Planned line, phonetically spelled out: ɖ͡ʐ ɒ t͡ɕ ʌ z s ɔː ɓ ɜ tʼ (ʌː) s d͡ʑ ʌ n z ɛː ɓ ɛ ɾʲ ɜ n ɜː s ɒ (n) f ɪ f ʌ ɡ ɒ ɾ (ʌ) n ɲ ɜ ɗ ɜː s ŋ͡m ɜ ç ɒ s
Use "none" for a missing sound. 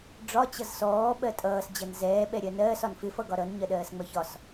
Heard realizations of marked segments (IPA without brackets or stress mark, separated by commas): ʌː, n, ʌ